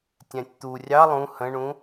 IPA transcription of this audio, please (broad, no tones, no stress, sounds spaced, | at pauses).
tʲ æ̃ tʲ t̪ u rʲ ɑ lˠ ũ h ə̃ ɳ ũ